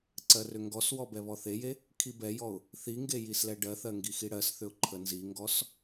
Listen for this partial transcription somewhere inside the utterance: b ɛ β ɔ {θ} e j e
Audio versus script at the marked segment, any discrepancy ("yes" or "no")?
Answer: no